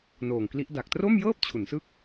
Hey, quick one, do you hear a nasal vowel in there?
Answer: no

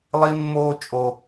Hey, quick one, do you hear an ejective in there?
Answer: yes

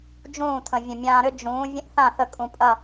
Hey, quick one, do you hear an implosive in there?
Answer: no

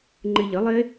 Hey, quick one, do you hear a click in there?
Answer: yes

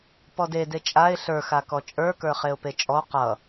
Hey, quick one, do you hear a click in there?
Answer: no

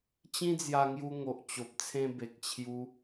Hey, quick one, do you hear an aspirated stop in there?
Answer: yes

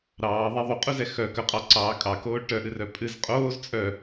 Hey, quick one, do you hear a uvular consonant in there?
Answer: yes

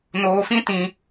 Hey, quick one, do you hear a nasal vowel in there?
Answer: yes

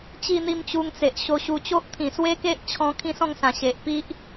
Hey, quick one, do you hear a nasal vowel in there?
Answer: yes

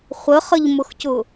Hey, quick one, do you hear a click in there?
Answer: no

